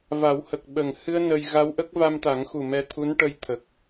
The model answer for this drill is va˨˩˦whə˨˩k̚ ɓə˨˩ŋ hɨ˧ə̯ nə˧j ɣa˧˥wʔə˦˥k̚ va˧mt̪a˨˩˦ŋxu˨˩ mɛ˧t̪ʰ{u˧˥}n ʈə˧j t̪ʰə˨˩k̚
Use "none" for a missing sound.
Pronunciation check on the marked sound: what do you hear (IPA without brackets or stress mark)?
u˧˥